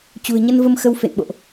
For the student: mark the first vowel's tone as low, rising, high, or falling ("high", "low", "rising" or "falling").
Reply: low